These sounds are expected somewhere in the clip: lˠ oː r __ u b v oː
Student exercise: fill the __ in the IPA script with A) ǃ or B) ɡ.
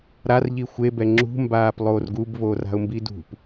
B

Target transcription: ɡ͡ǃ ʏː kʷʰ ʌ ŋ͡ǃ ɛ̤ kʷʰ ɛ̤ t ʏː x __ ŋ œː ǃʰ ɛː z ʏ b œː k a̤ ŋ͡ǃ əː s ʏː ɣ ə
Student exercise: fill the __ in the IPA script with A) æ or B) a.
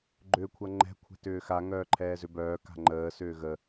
B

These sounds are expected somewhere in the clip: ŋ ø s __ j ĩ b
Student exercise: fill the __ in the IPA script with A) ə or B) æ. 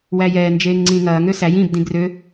B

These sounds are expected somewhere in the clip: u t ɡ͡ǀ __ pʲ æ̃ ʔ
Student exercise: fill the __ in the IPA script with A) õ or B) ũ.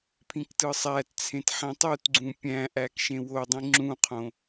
B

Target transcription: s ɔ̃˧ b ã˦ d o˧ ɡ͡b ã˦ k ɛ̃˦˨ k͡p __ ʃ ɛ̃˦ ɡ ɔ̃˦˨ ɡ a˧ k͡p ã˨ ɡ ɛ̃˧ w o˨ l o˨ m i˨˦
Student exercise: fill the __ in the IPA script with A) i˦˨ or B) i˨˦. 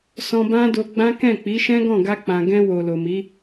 B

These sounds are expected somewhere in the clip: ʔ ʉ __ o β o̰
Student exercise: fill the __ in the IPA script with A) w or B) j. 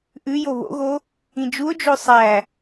B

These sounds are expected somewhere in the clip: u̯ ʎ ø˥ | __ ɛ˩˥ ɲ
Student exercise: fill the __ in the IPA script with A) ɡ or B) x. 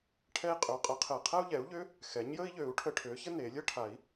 B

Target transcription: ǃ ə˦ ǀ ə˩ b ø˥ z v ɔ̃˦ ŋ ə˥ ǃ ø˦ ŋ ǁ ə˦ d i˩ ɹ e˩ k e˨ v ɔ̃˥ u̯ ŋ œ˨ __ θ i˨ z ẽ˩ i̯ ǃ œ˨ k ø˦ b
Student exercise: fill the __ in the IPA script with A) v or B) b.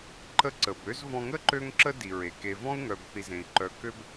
B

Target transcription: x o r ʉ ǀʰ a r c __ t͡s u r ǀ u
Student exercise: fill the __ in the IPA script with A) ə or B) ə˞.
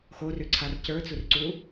B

